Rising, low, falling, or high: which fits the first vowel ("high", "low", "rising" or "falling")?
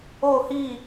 falling